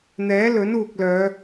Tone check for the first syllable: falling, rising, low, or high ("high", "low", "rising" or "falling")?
rising